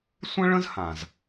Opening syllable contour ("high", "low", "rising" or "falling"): high